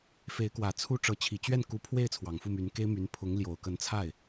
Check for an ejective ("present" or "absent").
absent